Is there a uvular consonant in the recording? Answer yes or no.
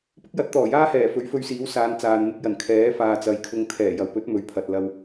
no